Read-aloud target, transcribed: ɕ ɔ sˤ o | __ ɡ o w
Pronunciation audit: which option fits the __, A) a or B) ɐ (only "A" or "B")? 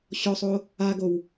A